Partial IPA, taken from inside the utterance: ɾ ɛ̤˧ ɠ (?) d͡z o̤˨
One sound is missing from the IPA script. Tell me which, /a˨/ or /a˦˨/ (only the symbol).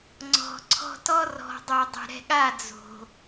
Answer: a˦˨